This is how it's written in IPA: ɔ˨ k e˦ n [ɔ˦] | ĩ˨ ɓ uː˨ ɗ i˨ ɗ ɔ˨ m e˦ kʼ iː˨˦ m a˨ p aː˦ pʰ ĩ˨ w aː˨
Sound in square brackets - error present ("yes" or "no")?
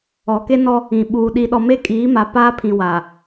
no